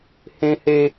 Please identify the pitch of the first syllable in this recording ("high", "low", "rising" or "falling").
high